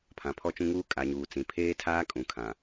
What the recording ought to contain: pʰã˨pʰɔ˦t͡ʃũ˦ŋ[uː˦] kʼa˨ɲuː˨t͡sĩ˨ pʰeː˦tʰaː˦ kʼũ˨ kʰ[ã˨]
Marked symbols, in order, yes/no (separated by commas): yes, yes